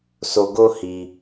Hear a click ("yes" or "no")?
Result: no